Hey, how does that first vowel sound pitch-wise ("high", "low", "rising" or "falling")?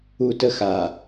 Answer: high